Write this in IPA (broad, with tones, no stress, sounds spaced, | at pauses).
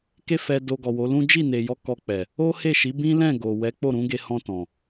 k e˦ f ɛ˧ d o˧ ɡ ɔ˨ w o˨˦ l ũ˦ d͡ʒ i˦˨ n e˨ j ɔ˧ k ɔ˧ k͡p ɛ˨ | o˦ h e˦˨ ʃ i˨˦ b ĩ˦ l ɛ̃˦˨ ɡ o˨ w ɛ˨˦ k͡p o˦˨ ɾ ũ˨˦ ɡ e˧ h ɔ̃˧ t ɔ̃˨